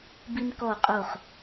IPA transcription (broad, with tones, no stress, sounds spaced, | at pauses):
b i˧ n k ɔ˧˩ qʼ o˧˩ χ